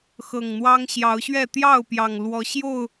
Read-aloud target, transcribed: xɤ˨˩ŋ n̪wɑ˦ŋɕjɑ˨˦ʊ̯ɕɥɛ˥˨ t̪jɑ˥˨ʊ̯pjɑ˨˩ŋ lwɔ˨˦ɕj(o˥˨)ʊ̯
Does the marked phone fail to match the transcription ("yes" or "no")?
no